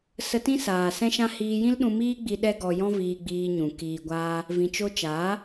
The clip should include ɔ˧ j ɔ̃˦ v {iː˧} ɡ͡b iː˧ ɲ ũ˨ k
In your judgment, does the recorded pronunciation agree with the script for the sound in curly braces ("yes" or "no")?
yes